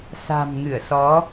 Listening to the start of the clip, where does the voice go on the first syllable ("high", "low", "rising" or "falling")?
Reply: low